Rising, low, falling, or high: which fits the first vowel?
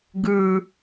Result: low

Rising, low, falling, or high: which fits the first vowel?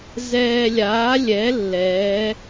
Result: low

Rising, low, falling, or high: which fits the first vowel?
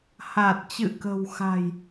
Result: low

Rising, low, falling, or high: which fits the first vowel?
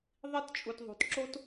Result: high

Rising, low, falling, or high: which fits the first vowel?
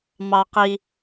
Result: low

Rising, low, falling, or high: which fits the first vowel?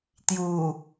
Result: low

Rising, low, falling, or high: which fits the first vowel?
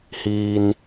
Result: low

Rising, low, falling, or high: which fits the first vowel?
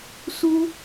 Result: high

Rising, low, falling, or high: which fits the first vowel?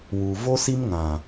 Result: low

